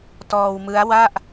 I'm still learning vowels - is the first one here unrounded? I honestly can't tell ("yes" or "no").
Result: no